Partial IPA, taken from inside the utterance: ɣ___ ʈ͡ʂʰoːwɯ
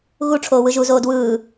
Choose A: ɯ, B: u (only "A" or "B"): B